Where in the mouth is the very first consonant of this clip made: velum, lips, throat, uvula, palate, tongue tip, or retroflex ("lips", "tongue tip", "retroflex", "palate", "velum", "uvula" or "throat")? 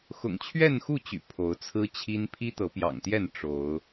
velum